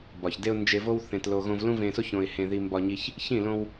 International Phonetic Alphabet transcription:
bɒ˨çde˧ʊ̯ nd͡ʒe˧vo˦w θẽ˧tlo˧ ɣõ˧v lũ˦vẽ˧so˦ç õ˧ɪ̯hẽ˧ði˧ mbɒ˧ɲi˧ç | çĩ˦˨ lõ˧w

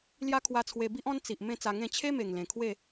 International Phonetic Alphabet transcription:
lja˦kʰwa˧t͡sʰwe˧bi˦ʔ ɔ̃˦nt͡si˨ʔ mẽ˥˧t͡sa˧ŋẽ˥˧ t͡ɕʰe˦me˨˩ŋlẽ˨˩ kʰwe˥˧

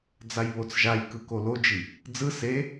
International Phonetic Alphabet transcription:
d͡zajβot͡sʒajkɯ kolod͡ʒi | d͡zɯ se

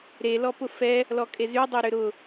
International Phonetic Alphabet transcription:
ɾe lɔpʊfɛ | lɔkʼezy dˤɛɾʏɾʊ

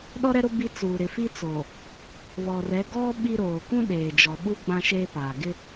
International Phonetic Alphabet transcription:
ɗɔ˦ɾɛ˦ɾʊ˦ bi˦ t͡suː˨ ɾɪ˨fi˦t͡soː˨ | βɔ˨rɛ˨˦ ɡɔ˦ ɓi˦ɾoː˨ kũ˦ ɗeː˨d͡ʒɔ˨ɓu˦ ɡ͡bã˦ʃeː˦paː˨ ɡɪ˦

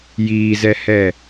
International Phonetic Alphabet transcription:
jiːzɛhɛ

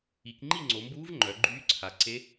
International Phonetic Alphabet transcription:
i˩˧kŋ͡ǃi˥˨ŋ͡ǀo˩˧mbuː˧˥v ŋ͡ǃœ˩˧ɡ͡ǃyː˧˥ǀʰa˩˧ ǀe˧˥

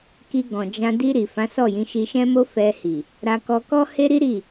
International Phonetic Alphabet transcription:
ki˧ɡɔ̃˨d͡ʒã˧ di˧ɾi˨ fã˨˦sɔ˦˨jĩ˨˦ʃi˧ ʃɛ̃˦mo˦fɛ˧hi˨ | ɾa˧ kɔ˧ kɔ˦he˦ɾi˦ɾi˦˨

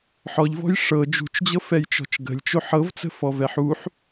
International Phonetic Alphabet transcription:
ħɔʎvɔ̤j ʂɤ d͡ʒṳt͡ʃd͡ʑɤfɛjt͡ʃɔ̤t͡ʃ ɡə̤lʲt͡ʃoħ ɤvt͡sə̤fɔvɛħ uħ

